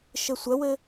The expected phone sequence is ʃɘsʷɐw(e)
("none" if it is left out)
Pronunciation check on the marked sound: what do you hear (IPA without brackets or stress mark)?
ɘ